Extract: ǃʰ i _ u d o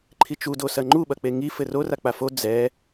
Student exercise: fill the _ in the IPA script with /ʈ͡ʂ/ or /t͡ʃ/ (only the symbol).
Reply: t͡ʃ